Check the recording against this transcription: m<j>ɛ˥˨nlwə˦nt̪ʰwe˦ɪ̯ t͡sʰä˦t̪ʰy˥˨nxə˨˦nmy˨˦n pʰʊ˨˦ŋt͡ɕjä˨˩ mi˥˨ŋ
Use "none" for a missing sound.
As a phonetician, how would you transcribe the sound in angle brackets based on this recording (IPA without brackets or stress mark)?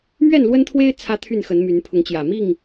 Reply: ɥ